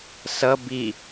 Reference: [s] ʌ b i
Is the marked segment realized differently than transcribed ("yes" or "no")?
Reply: no